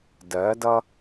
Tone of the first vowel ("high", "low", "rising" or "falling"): rising